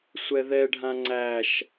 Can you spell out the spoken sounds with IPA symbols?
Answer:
sʷ ɛ ð ɛ ɖʱ ã ŋ͡ǀ æ ʃ

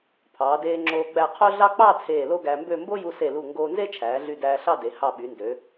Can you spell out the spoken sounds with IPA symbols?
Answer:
pʰ ɑː˩˧ d eː˧ ŋ͡ǁ oː˧ ɡ͡b æ˧˩ qʰ o˥ ɮ ɑ˥ k͡p ɑ˥˧ t͡sʰ eː˧˩ l o˥ ɡ æ˧ m b ø˥˧ m b o˥ j u˧ s e˧˩ l u˧˩ ŋ ɡ oː˧ n z e˥ t͡ʃʰ æː˩˧ ɮ y˧˩ d æː˧ ɬ ɑ˥˧ d e˩˧ h ɑ˧˩ ɓ y˩˧ n d ø˩˧

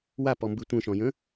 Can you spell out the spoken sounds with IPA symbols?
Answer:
w a p ɔ m b ɨ tʷ ə̃ ʃ ɔ̃ j ə̃

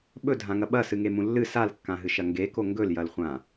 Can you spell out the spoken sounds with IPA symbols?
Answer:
ɓ ɵ dʱ ã ŋ ɐ ɓ ɐ s ɨ ŋ e m ũ lː ɨ s a l kː ã ɦ ɨ ʃ ɐ ŋ ɡ e k o ŋ ɡ ɵ l j ɐ l χʷ ã

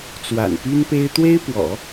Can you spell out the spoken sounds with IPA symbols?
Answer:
t͡s w a̰˨˩ n p y˥ n p e˥ ɪ̯ t̪ w e˥ ɪ̯ p w ɔ̰˨˩˦

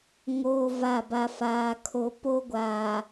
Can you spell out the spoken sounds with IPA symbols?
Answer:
ŋ oː˦ v a˦˨ b a˦ f aː˦ kʰ o˦ p o˦ ɡʷ aː˨

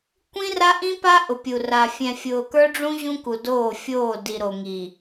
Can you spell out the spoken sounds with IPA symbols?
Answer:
kʷ ĩ˦ r a˦ ʔ ĩ˦ p a˦ ʔ ʊ˨ pʲ u˨ r a˨ fʲ ɛ̃˨ fʲ ʊː˨ k ə˞˦ ɖ͡ʐ ũ˦ ʑ ũ˦ k u˨ d oː˦˨ fʲ oː˦˨ d i˨ ɾ o˨ ŋ i˨

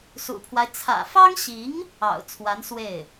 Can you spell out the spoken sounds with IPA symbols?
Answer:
s ṵ˨˩ pʰ w a˦ ɪ̯ t͡sʰ ä̰˨˩ f ɑ˥ ŋ ɕ i˧˥ ŋ | ɑ̰˨˩ ʊ̯ t͡sʰ w a˧˥ n s w e˥˩ ɪ̯

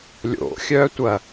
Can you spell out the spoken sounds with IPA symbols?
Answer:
lʲ o̰ xʲ œ tʷ ɐ

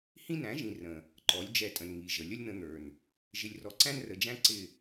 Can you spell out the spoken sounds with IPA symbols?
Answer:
h ĩ˦ n æ̃˨˦ ʒ ĩ˨ r ə̃˨ | ǃ ɔ˨˦ lʲ d͡ʒ ɛ˧ tʼ ə̃˨ n ŋ i˨ ʒ ə˨ lʲ ə˦ lʲ n̪ ə̃˧ n̪ ə˞˨ n | ʒ ɪ˨ lʲ r ɔ˨ ǀ æ̃˦ n r ə˨ d͡ʒ æ̃˦ ǀ ɪ˦˨

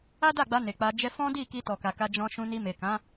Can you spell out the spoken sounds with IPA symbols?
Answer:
a˦ d a˦˨ ɡ͡b a˧ n e˨ k͡p a˧ d͡ʒ ɛ˦ f ɔ̃˦ d i˦˨ k i˧ t ɔ˨ k a˨ k a˧ d͡ʒ ɔ̃˧ ʃ ũ˧ n i˧ m e˨ k ã˨˦

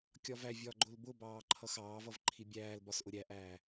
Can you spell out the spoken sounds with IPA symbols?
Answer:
kʲ ɒ v æ vʲ ɒː ɡ͡ǃ ʊ l b ʊ b ɑː ǃʰ ʌ x ɑː v ʌ v ǃʰ i bʲ æː l b ɒ s ʔ ʊ ɾʲ æ ʔ æː

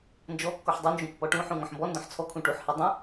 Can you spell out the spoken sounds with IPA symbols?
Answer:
n d͡ʒ ɔ kː ɔ ħ dˤ u n d͡ʒ ũ pː ɔ ʈ ũ ħ ũ ŋ ɔ̃ ħ m b ɔ n d ɔ̃ ħ t͡sʰ ɔ kʰ ũ ʈ u ħ h i dˤ ĩ

